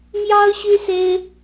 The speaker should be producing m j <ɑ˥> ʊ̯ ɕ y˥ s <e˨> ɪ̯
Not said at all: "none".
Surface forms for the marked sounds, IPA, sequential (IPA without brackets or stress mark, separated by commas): ɑ˥, e˥